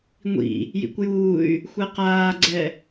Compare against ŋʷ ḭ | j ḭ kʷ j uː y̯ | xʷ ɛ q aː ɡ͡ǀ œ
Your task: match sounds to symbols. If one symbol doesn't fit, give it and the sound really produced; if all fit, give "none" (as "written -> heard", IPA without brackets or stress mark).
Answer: œ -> ɛ